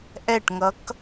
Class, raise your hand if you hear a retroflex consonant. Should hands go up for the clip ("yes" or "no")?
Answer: yes